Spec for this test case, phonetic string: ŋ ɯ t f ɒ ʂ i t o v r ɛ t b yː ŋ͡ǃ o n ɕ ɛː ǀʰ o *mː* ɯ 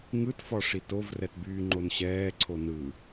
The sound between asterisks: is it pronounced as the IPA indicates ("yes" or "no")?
no